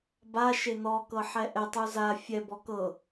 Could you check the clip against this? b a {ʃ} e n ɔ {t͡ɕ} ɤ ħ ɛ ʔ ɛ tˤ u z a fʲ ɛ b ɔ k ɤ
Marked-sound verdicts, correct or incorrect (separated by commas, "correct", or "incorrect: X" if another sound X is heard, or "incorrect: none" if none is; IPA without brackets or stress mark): correct, incorrect: k